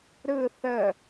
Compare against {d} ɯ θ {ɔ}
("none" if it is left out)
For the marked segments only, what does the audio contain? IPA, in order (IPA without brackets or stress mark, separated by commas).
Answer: ɾ, ə